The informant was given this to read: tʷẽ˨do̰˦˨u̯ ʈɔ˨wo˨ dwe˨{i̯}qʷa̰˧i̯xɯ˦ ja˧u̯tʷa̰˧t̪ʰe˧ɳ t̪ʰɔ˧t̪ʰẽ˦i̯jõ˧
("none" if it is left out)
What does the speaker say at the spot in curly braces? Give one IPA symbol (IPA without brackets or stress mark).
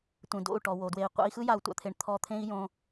i̯